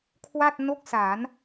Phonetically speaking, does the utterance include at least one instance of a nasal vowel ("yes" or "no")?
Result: no